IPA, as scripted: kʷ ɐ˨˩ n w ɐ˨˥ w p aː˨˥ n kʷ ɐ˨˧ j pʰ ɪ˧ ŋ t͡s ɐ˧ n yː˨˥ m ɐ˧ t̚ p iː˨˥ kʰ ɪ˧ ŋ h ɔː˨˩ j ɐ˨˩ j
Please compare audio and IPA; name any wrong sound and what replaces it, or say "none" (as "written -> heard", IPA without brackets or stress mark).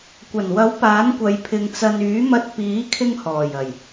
none